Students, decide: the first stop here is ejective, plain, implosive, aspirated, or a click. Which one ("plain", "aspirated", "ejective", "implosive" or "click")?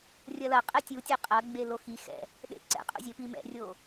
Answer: ejective